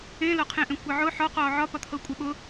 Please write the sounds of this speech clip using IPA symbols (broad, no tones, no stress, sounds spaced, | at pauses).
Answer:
ẽ l ɒ qʰ ẽ ʔ ẽ kʷ e ʕ ʊ ħ ɒ q ɒː ʕ ɒ p ɒ t̪ʰ ɤ kʷʼ e ɓ ʊ